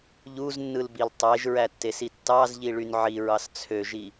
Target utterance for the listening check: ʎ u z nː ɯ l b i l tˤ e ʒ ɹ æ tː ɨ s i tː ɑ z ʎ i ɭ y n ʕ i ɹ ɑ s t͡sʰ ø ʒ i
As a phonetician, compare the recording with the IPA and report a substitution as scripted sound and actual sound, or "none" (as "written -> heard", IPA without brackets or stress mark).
ɨ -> e